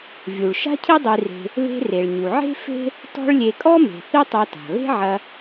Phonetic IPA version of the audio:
vʲ u˩ ɭ ʃ a̤˥ cʰ i˥ dˤ i˧ r e̤˧ | β e̤˧ r e˩ ɭ ɲ u˩ ʕ e̤˥ f e̤˥ | t ɔ̤˥ ɭ lʲ e˧ kʼ ɔ˥ m e̤˩ θ i˥ tˤ a˧ t a̤˩ β e̤˥ ʕ ɐ˧

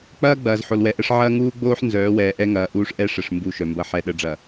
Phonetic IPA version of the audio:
k͡p ɐː˦ ɡ͡b ɐː˨ z ħ o˨ l w ɛ˨ ʔ ə˦ ʂ ʕ ɐː˦ ŋ uː˦ ɡ͡b oː˦ ħ n z œː˨˦ w ɛː˨ ʔ ɛ˦ ŋ ɐː˨ ʔ uː˦ ʂ ʔ ɛ˦ ʂ ə˨ ʂ m b u˦˨ ʃ œ˨ m b ɐ˦ ħ ɛ˨ ɗ ə˨ ɖ͡ʐ ɐ˨

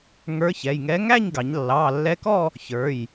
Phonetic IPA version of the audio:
ŋ ə˞˧˥ ç ɛ˩˧˩ j ŋ ɛ˧˥ ŋ æ˥˧ ɲ ɡ ɑ˩˧ ɲ lː ɑ˩˧˩ lː ɛ˧˥ k ɔ˥˧ | ç ə˞˩˧˩ j

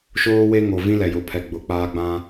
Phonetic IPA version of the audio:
ʃ oː˦ w e˦ ŋ o˨ v ĩ˦ l ɛ˨ j ʊ˨ pʰ ɛ˨ ɡ͡b ʊ˨ k͡p aː˦ ɡ͡b ã˦

